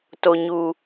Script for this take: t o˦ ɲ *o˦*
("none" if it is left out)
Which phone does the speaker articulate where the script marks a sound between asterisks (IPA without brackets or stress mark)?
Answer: u˦